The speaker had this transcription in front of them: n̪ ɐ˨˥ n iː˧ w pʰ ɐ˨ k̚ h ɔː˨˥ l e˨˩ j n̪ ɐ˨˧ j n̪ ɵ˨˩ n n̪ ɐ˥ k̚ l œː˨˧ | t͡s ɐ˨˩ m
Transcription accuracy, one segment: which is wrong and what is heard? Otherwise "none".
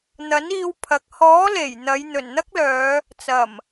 none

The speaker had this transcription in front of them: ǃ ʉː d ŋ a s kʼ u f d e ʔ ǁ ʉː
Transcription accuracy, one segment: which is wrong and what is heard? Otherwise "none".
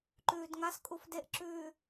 none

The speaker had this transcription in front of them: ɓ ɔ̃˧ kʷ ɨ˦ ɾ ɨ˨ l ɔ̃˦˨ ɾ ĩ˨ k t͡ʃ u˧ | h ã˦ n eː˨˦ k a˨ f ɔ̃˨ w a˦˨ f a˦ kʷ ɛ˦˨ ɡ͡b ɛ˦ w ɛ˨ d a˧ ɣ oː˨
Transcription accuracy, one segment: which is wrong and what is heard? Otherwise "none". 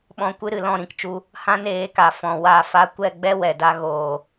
none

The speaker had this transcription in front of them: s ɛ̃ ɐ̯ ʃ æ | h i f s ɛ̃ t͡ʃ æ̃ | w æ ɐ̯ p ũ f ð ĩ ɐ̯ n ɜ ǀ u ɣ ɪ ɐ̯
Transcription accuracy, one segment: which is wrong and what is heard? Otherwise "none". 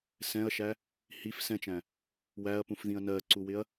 ɣ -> w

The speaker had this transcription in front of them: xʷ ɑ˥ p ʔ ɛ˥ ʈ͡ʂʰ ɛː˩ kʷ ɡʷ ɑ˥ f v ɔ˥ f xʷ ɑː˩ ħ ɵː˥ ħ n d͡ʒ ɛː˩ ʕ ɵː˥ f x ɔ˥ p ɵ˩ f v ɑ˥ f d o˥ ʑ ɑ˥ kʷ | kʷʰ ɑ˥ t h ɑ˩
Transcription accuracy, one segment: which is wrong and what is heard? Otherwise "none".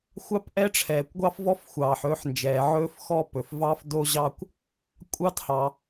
kʷʰ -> kʷʼ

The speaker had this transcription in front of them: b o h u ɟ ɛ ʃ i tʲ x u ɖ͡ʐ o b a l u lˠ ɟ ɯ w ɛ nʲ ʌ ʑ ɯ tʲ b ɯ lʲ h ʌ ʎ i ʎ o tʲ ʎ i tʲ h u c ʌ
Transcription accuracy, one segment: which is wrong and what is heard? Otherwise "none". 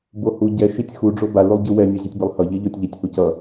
lʲ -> lˠ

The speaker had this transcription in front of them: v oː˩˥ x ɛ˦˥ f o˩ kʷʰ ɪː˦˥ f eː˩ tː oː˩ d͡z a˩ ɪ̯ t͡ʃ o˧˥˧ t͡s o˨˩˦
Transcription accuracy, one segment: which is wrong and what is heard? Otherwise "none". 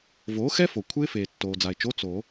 none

